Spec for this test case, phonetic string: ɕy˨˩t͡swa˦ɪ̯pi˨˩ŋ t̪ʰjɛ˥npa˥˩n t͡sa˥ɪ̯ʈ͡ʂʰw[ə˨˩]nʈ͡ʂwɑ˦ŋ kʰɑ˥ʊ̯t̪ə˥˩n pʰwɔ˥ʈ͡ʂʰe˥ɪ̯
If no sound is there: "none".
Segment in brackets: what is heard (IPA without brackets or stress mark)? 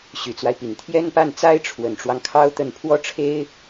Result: ə˨˩